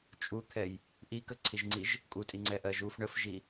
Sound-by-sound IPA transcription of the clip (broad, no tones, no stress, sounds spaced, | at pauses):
t͡ʃʼ u t̪ʰ ɛ j | ʔ i k ə ǀʰ i ʒ ŋ͡ǀ i ʒ | kʼ u tʼ i ŋ͡ǀ ɛ ʔ ɜ ʒ u f ɳ ə f ʒ i